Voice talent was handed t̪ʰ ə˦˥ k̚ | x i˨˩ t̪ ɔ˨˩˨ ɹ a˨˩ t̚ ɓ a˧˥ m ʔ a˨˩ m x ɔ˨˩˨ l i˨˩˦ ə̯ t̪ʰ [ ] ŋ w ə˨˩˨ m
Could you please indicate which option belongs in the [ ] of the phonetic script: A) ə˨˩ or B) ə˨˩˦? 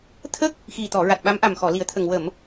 A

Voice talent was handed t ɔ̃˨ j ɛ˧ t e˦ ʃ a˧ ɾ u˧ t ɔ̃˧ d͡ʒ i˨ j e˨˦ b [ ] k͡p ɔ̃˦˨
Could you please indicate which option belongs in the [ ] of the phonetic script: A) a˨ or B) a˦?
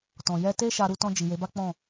B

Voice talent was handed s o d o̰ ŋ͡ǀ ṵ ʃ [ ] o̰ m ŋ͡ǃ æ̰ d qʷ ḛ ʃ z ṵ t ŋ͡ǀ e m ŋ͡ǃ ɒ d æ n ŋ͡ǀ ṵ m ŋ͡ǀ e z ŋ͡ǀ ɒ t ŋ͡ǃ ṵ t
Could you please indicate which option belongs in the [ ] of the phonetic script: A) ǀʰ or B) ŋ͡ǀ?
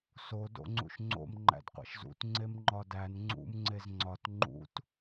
B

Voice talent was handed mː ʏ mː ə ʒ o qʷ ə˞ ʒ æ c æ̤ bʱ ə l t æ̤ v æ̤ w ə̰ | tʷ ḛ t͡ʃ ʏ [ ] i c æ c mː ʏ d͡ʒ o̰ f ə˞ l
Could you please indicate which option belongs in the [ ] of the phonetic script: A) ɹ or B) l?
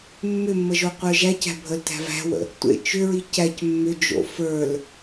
A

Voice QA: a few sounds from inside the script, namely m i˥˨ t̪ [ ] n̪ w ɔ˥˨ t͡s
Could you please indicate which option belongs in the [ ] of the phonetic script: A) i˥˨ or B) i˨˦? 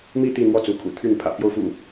A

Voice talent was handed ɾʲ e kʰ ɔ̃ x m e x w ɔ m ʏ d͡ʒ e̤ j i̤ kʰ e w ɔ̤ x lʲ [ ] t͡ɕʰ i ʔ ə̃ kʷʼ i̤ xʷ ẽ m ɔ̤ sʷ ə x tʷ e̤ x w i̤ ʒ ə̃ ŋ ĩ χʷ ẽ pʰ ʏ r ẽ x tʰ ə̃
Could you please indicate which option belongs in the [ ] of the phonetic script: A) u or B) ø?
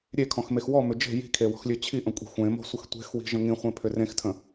B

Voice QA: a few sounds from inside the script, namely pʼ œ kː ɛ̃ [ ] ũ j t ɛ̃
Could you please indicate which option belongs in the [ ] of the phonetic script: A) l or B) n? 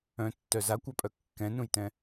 B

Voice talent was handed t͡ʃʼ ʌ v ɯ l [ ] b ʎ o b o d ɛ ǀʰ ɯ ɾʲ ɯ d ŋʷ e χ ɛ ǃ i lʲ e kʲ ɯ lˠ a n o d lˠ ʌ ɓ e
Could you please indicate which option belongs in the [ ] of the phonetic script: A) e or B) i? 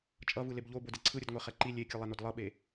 A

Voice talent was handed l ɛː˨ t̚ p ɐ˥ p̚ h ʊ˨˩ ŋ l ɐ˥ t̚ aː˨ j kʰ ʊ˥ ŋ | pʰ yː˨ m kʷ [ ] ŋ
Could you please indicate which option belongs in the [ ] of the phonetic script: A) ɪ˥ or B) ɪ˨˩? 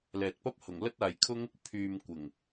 B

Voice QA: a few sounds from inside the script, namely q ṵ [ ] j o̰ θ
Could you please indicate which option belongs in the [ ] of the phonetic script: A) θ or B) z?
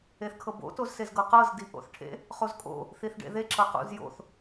B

